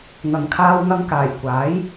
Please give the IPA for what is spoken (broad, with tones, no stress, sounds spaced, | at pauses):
ŋ ɐ˨˩ ŋ kʰ aː˧ w ŋ ɐ˧ ŋ k aː˨˩ j kʷ aː˨˥ j